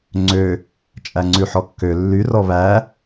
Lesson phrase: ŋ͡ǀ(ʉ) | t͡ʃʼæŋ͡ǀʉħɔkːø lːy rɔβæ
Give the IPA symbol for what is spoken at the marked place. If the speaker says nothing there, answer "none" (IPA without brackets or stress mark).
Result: ø